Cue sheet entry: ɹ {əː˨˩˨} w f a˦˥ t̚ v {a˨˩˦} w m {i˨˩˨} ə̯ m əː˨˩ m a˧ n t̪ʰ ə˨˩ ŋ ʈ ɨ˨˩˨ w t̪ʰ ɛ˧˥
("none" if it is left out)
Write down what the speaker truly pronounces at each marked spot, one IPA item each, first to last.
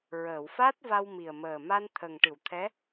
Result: əː˨˩˨, a˧, i˨˩

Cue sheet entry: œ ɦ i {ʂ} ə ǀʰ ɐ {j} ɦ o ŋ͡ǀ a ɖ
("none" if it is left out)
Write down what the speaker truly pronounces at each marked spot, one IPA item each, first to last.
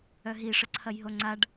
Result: ʂ, j

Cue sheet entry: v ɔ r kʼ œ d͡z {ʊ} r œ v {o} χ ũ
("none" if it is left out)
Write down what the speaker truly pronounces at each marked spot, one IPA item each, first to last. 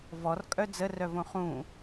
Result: ə, õ

